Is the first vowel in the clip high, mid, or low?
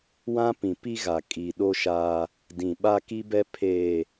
low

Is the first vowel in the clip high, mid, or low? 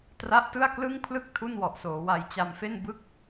low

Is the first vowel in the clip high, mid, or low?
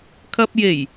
low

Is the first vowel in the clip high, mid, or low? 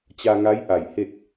low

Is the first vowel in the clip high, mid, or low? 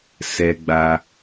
mid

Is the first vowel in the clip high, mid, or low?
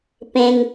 mid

